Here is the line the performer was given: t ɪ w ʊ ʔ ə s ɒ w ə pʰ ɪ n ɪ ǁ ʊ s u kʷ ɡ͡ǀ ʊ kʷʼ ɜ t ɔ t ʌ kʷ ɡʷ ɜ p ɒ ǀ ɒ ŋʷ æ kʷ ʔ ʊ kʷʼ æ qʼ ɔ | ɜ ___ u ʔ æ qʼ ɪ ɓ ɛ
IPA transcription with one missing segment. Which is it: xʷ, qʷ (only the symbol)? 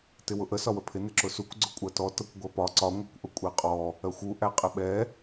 xʷ